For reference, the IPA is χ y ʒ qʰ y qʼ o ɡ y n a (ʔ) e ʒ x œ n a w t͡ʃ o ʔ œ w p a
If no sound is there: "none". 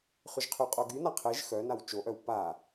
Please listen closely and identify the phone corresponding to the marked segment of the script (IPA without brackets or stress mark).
qʰ